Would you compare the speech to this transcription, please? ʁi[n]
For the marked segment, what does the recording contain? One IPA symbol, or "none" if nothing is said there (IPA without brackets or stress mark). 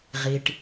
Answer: ʈ